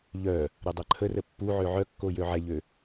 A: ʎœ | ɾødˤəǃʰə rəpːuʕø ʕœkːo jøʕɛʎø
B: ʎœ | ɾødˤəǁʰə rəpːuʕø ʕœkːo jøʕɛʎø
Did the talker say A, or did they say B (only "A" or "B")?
A